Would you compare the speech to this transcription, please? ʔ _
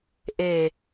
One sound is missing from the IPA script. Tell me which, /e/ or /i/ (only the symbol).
e